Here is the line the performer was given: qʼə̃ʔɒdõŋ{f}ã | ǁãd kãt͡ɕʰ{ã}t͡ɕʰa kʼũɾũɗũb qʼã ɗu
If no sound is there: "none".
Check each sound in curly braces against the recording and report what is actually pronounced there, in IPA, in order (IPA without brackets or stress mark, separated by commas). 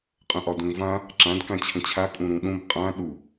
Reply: v, ə̃